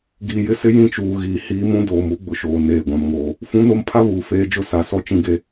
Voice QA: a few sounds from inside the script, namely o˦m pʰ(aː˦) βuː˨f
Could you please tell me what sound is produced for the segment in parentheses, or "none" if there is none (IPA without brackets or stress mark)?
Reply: a˦